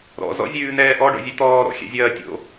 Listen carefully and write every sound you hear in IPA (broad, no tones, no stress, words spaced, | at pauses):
ɾɔ̰zɔ̰zʲʉːn̪ɛː ʔɔɖɔ̰zʲʉ t̪ɔːɾɔ̰xʲɛ̰zʲɐː tʲo̰